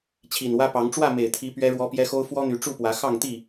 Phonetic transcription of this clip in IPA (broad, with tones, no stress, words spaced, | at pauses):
t͡ɕʰi˨˩nwä˦pɑ˨˦ŋ ʈ͡ʂwä˥˨me˨˩ɪ̯t̪ʰi˨˦ pɥɛ˦ɻwɔ˦ pjɛ˦xo˦ʊ̯fwɔ˦n̪y˨˦ ʈ͡ʂu˥˨pwä˨˦ xɑ˥˨ŋt̪i˥˨